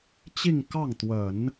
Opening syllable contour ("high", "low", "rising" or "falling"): falling